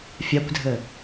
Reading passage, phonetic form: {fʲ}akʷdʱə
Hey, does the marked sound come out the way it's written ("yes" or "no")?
yes